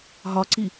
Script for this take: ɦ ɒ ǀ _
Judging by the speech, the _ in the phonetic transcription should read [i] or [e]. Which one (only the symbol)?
i